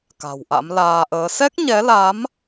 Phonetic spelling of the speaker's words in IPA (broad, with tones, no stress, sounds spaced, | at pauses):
k a̤˨˩ w ʔ a̰˧˥ m l aː˧ ʔ əː˨˦ s ɛ˦˥ k̚ ɲ ɛ˨˦ l a˨˦ m